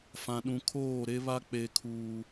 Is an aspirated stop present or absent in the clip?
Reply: present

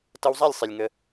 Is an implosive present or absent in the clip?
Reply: absent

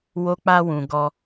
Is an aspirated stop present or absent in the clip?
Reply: absent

